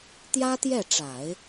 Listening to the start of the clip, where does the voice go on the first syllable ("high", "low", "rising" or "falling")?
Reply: high